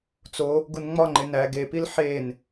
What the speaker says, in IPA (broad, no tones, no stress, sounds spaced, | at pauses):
t͡s o | ɡ u n ŋ͡m ɒ ŋ͡ǃ e n æ ɡ e p i l ħ e n